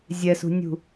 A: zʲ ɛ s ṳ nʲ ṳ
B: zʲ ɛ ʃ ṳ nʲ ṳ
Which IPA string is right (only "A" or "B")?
A